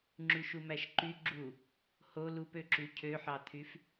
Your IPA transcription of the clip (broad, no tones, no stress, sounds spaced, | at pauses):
ŋ͡ǁ y ʃ u m æ ʃ ǃ y ɡ͡ǁ u | h o l u p ø ǁ y cʰ ø ħ ɑ t̪ʰ y f